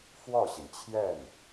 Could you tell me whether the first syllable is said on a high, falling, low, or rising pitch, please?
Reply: falling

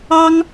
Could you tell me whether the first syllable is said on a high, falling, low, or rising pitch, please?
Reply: high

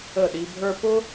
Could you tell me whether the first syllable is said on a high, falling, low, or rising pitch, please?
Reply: falling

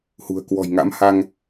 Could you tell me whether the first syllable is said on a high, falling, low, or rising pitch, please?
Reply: low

